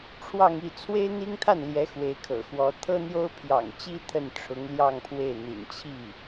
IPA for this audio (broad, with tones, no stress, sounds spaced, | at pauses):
ʈ͡ʂʰ w ɑ˥˧ ŋ i˥˩ t͡sʰ w e˥ ɪ̯ n̪ i˥ ŋ t̪ʰ a˥˩ n l j ɛ˧˥ x w e˧˥ ɪ̯ kʰ ɤ̰˨˩ x w ɔ˧˥ t̪ʰ ɤ˥ n̪ j o˥ ʊ̯ pʰ j ɑ̰˨˩ ŋ t͡ɕ i˥ t̪ʰ ə˥˩ n ʈ͡ʂʰ ʊ˧˥ ŋ l j ɑ˥˧ ŋ pʰ w e˥˩ ɪ̯ n̪ ḭ˨˩ n t͡ɕʰ i˥˩